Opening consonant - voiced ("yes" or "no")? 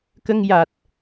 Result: no